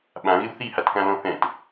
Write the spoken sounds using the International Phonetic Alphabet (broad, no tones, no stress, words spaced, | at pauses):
ɓãɣɪw θihatkãlɔ̃ θɛ̃t